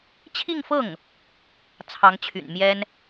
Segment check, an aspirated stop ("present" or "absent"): present